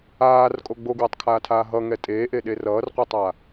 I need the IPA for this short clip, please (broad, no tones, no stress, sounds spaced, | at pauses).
aː r kʼ o ɡ͡b o ɡ w ɛ tˤ kʰ aː tʰ aː ɦ ʌ ŋ ɛ tʼ eː ʔ e ɗ e r ʌː r qʷ ʌ tˤ a